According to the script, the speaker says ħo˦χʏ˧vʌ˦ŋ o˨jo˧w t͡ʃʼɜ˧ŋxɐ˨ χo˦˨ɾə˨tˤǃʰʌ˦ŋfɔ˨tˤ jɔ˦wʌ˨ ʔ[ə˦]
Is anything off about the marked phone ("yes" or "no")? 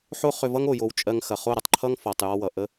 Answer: no